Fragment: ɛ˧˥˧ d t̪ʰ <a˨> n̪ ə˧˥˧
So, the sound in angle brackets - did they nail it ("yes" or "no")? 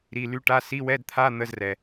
no